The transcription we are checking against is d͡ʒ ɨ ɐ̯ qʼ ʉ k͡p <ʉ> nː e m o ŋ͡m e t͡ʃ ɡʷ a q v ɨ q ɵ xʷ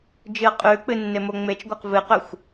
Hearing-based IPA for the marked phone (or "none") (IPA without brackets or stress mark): ɨ